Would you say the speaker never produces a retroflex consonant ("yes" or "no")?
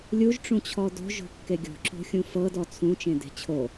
no